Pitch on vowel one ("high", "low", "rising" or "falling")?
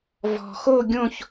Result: low